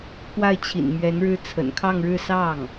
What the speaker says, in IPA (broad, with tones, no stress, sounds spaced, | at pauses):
k w a˥˩ ɪ̯ t͡ɕʰ ḭ˨˩ n m ɥ ɛ˧˥ n ɻ ɻ̩˥ t͡sʰ ə̰˨˩ n kʰ ɑ˥˧ ŋ ɻ ɻ̩˥˧ s ɑ˥˩ ŋ